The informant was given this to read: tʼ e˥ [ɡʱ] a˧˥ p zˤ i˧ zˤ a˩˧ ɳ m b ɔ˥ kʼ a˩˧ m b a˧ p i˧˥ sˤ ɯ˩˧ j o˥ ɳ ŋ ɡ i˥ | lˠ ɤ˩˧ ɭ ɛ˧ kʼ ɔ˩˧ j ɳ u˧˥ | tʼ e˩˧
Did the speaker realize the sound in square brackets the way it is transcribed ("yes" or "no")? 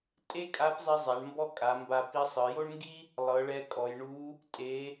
no